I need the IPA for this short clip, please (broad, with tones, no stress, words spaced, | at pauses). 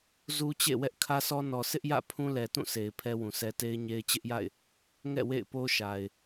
zu˦t͡ɕḛ˦˨ wɛ˦ʔkʰä˦sɔ˦ nɔ˨sʰɪ˦ʔjä̰˦˨ pʰũ˦lɛ˨tũ˦˨ sʰe˨ɪ̯ pʰɛ˦wũ˨sʰɛ˦ te˦ɪ̯ɲe˦ɪ̯ t͡ɕɪ˦ʔja̰˦˨ɪ̯ | ŋɛ̰˦˨ wḛ˦˨ɪ̯po˦ ʃa˨ɪ̯